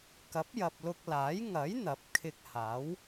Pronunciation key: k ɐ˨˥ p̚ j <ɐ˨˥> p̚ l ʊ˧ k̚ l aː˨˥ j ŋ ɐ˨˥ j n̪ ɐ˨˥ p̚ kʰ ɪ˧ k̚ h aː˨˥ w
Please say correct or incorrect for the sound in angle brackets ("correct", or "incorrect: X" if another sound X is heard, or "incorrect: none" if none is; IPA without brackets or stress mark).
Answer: incorrect: ɐ˨